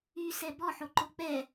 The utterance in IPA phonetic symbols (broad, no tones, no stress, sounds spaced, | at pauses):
y s ɛ b ɔ ħ o ǃ o k͡p ɛ